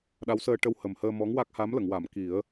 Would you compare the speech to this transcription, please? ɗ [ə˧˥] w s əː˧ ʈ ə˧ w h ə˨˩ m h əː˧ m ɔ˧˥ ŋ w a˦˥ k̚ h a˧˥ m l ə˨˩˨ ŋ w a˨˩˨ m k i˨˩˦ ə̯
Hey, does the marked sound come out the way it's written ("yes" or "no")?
no